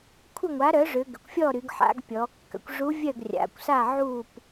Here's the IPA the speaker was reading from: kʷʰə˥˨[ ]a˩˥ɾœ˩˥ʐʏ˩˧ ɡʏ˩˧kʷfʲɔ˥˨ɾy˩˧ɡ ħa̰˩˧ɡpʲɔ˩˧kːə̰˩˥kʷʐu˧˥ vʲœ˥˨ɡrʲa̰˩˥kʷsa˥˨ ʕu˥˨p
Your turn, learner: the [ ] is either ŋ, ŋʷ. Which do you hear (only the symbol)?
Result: ŋʷ